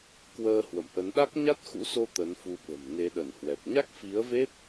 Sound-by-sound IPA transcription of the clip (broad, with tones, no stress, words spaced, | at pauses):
kwəː˧ hwə̰˧˨mʔə˨˦n ɗa˦˥k̚ɲa˦˥t̚xṵ˧˥so˧ t̪ə˨˦nfu˧ɓə̤˨˩m ne˨˦ɗə˧˩nhwɛ˨˩p̚ ɲa˦˥k̚fi˨˦ə̯ve˦˥p̚